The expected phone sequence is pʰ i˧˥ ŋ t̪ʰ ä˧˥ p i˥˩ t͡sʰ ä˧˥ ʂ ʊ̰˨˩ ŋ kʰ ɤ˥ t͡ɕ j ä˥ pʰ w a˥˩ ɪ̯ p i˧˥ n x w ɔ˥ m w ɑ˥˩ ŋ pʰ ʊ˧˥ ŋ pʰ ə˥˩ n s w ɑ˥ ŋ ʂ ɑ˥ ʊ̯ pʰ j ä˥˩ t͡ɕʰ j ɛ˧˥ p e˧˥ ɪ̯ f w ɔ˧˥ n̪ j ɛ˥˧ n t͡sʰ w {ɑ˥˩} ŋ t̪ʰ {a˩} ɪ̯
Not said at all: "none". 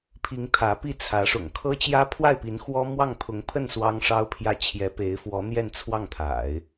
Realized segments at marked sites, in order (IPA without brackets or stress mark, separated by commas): ɑ˥˩, a̰˨˩˦